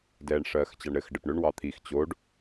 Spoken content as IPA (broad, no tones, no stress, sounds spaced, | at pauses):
d ɛː ɳ ʂ ɜː x t͡ɕ ɑ ɳ ɾ ɘ x ɖ ɘ p ɳ ø ɳ w ɑ t̪ʰ i x t͡ɕ o ɖ